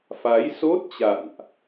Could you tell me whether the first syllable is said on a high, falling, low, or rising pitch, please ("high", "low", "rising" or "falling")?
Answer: rising